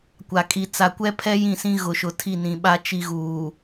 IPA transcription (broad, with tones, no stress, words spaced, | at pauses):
kʷa˨ kʼi˨t͡sa˨kʷɛ˦pʰɛ˦ jĩ˦˨sĩ˦ ɣʊ˨ʃʊ˨tʰi˦˨ nĩ˨ɓa˦ t͡ʃi˦ɣuː˨